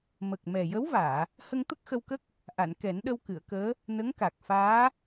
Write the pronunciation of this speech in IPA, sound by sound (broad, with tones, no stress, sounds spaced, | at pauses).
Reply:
m ə˨˩ k̚ m ɛ˨˩ j ə˧˥ w v aː˨˩˨ | h ə˧ ŋ t̪ ə˦˥ k̚ x ə˧ w k ə˦˥ k̚ | ʔ a˨˩˨ n k ɛ˨˩˦ n ɗ ə˧ w k ɨ˨˩˨ ə̯ k əː˧˥ | n ə˧˥ ŋ k a˨˩ k̚ f aː˧˥